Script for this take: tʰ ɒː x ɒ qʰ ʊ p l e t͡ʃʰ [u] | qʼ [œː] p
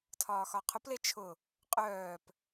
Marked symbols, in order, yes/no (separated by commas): no, yes